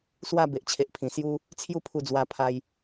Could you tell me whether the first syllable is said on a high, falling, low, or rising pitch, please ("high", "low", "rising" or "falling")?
falling